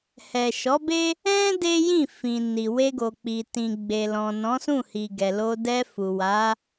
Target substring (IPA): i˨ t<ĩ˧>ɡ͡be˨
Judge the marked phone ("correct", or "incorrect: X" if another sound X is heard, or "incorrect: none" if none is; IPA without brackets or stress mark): incorrect: ĩ˨